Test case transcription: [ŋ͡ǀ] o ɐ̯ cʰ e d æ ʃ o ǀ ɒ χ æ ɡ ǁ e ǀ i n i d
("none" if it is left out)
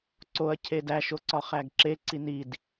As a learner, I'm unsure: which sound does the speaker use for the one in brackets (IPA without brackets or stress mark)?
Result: ǀ